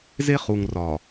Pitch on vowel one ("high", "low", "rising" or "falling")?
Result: high